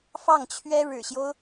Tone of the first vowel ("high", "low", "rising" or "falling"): falling